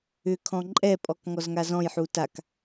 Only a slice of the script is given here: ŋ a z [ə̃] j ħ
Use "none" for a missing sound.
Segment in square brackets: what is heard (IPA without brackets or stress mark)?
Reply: ɔ̃